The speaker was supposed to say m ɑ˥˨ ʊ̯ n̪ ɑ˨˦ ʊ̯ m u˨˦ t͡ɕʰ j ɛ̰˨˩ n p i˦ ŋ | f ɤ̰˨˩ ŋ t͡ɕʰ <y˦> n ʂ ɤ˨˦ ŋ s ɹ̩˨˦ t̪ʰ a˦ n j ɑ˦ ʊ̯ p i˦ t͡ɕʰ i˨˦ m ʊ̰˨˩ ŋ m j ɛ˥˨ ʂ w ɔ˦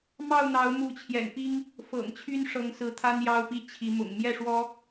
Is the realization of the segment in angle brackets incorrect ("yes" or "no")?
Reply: no